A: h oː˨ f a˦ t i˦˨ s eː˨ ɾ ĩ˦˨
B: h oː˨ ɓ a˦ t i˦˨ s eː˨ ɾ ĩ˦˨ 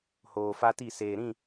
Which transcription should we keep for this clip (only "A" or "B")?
A